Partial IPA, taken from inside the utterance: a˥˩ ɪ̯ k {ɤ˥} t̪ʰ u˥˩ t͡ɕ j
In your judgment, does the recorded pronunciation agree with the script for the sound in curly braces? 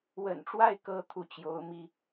yes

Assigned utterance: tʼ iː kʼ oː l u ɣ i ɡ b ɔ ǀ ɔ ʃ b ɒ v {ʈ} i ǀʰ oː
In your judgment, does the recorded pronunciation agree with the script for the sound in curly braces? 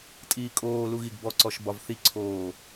no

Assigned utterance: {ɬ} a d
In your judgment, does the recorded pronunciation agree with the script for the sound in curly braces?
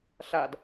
yes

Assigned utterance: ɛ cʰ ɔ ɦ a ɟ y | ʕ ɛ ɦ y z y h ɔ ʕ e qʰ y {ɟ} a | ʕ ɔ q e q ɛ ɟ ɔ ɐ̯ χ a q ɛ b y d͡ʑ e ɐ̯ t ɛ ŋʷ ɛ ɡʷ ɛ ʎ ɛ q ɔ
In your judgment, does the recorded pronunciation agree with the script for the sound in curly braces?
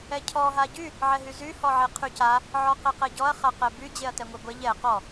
no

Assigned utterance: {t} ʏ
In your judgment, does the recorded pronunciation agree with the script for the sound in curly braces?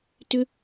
yes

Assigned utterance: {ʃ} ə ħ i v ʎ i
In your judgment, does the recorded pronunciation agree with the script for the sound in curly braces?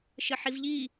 yes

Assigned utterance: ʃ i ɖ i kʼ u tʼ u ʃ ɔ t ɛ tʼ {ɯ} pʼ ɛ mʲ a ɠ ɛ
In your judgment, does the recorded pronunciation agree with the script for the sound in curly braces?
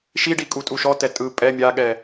yes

